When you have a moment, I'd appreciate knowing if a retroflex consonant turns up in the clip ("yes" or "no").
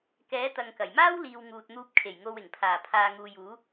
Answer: no